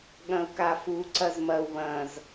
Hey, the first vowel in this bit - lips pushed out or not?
no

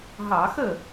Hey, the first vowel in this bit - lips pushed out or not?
no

